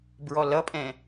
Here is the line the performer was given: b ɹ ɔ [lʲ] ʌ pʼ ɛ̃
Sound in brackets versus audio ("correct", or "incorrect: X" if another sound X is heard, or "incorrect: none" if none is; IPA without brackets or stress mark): incorrect: l